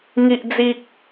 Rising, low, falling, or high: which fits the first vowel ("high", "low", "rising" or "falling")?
low